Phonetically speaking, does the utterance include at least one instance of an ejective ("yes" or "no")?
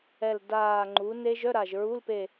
no